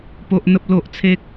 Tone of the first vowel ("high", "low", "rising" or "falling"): low